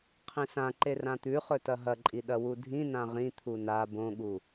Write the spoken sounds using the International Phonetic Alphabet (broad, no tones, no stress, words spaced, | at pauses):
qʰĩsãǃe rãt̪ʉχɵtɐ ɦɐǃʼi ɗɐwudʱĩ nãʁĩ t̪ʰuna bõɠu